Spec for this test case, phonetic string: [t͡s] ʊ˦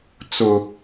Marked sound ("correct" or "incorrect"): correct